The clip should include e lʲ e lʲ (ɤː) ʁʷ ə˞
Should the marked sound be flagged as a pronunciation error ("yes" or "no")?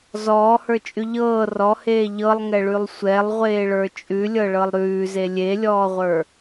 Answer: yes